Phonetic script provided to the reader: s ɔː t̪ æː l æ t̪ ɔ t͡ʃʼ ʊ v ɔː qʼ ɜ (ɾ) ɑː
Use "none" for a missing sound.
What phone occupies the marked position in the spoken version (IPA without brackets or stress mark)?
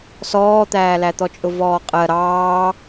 ɾ